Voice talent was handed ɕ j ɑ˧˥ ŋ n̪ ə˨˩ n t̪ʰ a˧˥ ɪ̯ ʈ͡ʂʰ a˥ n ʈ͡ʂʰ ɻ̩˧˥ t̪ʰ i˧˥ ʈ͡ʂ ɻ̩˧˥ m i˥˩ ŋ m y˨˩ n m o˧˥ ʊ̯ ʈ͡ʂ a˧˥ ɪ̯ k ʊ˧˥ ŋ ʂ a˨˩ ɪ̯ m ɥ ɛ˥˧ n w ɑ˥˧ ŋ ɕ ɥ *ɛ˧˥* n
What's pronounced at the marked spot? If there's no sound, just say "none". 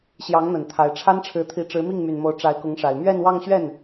ɛ˥˩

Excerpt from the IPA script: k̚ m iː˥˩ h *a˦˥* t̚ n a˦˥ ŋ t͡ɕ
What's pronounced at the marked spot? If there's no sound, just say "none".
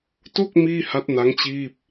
a˦˥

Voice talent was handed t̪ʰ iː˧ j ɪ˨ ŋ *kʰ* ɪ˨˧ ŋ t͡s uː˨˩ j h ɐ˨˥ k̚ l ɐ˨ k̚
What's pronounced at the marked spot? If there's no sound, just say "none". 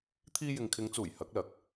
kʰ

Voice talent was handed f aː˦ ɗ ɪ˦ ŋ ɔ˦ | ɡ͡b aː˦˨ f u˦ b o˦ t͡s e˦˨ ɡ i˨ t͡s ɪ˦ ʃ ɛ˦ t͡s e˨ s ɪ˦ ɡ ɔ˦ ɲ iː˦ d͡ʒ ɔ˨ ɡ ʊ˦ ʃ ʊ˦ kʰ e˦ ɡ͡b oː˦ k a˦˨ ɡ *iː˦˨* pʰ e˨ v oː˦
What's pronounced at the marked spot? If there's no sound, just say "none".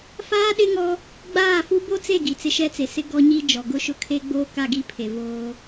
i˦˨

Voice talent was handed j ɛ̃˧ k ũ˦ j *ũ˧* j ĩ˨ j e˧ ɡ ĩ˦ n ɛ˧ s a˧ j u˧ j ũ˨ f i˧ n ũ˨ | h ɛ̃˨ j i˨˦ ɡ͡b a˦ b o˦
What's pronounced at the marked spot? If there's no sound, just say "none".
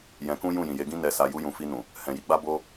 ũ˦˨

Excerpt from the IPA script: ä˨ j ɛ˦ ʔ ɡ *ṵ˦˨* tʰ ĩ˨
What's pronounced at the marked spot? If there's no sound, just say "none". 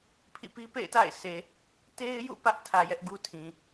u˦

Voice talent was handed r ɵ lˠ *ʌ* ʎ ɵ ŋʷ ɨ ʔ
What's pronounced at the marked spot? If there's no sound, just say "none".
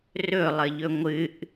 ə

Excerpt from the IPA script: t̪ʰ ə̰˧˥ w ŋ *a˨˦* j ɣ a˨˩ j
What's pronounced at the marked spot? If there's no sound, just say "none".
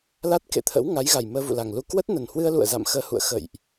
a˨˦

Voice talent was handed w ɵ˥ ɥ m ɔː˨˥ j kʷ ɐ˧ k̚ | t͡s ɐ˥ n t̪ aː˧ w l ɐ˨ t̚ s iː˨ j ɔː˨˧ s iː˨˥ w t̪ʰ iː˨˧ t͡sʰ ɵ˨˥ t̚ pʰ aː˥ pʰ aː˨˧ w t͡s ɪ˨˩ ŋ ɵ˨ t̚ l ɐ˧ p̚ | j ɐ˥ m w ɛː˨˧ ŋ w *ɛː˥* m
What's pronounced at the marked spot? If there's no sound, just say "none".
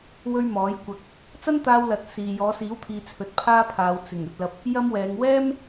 ɛː˥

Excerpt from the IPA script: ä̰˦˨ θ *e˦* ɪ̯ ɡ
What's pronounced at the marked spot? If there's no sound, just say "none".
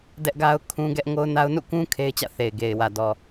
e˨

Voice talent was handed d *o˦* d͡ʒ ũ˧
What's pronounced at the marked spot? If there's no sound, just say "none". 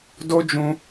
o˦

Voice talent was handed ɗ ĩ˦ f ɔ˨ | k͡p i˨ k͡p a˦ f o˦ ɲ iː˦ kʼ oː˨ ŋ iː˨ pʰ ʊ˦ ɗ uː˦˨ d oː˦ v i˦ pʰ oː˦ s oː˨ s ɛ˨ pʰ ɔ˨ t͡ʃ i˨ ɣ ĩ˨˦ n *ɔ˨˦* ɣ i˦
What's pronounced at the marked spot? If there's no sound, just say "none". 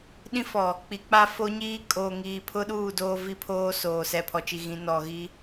ɔ˨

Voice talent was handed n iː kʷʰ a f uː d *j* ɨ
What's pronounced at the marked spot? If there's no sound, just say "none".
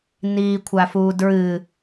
ɹ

